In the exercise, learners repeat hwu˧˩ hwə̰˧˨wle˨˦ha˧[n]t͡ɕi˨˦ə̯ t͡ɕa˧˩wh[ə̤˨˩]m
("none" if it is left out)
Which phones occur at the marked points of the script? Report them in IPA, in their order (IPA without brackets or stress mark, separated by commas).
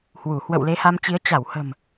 m, ə̤˨˩